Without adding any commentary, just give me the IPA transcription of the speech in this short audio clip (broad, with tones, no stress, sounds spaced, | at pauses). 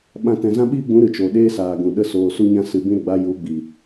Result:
ɓ ã˧ t ɛ̃˨ z ã˦ ɓ iː˦ ɡ͡b ũ˨˦ ɾ ɨ˨ t͡ʃ o˨ ɗ eː˦ s aː˨ ɡ ũ˨ ɗ ə˦ s oː˧ s u˦ ɲ ã˦ s ɨ˧ b ĩ˦ ɾ ə˨ ɡ͡b a˦ j u˨˦ ɡ͡b i˨